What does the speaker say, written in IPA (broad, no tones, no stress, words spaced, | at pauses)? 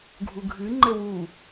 ɡʱuɡʱɨ ŋ͡ǃɘwu